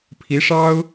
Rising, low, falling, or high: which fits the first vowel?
rising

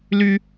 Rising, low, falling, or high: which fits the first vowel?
high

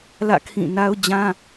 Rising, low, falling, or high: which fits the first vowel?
falling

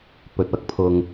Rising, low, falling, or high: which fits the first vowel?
low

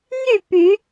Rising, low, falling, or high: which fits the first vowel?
falling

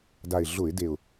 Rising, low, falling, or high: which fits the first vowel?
low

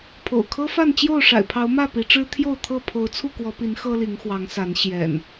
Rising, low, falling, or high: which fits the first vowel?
low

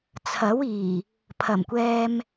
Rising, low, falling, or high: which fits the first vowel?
rising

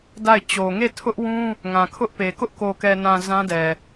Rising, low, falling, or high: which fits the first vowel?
falling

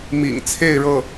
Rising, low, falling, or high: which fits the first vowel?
low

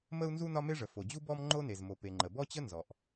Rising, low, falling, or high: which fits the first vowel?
high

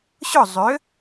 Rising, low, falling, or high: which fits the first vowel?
falling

